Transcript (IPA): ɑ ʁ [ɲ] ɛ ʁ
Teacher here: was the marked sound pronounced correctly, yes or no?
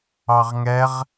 no